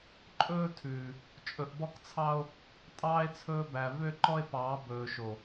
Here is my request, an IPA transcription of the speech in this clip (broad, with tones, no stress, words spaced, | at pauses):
ǃʼɵː˦tʰʉː˨ | t͡ʃʼɵ˨ʔbɔ˦kt͡sʰɑ˦o̯ | tʼɑː˦e̯t͡sʰɵː˦bæ˨ vø˦ǃɔ˦e̯pɑː˨˦ bɵː˨ʃo˨